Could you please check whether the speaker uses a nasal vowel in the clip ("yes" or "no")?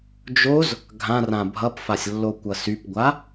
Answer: yes